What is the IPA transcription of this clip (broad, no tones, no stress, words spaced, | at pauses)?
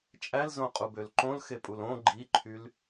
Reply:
t͡ʃʼælzõqʼubøl ǃõlxepʼul õ ɡ͡ǃiǃʰyl